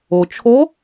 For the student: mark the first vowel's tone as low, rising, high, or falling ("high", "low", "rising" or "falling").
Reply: low